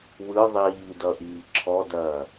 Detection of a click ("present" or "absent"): present